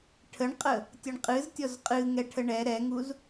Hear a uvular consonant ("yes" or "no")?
yes